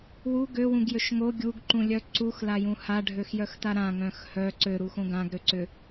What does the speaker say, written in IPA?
w u ɡ ø w ũ ɡ j ø ʃ ŋ o ɡʲ u ɡ ǃ ũ lʲ œ ǀ u x l a j ũ h a ɖʱ ø x j œ x t a ɾ ã ŋ œ̃ x h œ ǀ ø ɾ u x õ ɡ ã ɡ ɾ ø ǀ ʏ

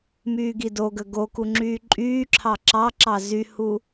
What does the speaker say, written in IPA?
m yː ɡ i d o ɡ ə ɡ o k u ŋ͡ǁ yː ǃʼ yː ǁʰ ɑ ǁ ɑ ǁ ɑ z y h u

